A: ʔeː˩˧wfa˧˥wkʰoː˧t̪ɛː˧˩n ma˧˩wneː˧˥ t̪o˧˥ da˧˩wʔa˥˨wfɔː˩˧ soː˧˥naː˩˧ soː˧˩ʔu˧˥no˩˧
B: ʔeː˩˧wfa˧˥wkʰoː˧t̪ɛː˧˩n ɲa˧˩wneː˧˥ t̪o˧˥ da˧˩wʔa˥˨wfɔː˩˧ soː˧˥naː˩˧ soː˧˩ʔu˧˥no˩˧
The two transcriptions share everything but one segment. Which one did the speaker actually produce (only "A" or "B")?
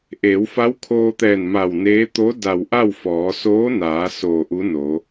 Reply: A